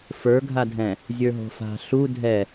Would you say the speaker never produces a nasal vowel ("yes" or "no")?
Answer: no